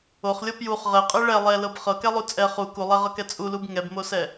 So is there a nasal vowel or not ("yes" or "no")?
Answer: no